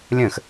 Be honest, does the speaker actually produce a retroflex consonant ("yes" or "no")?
no